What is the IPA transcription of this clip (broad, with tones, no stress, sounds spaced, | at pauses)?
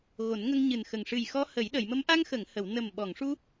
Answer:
ɣ o˨˩˦ n ŋ ə˧ ŋ ɲ ɨ˨˩ n x ə˨˩ ŋ ʂ ɨ˨˩ j x ɔ˧ h ə˨˩˦ j ɗ ə˨˩˨ j m ə˧˥ m ʔ a˧ ŋ x ə˨˩˨ ŋ h ə˨˩˨ w n ə˨˩ m ɓ ɔ˨˩˨ ŋ ʂ u˧